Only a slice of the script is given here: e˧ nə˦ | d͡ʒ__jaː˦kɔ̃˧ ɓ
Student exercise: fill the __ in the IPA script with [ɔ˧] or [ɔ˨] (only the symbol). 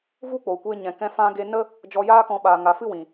ɔ˧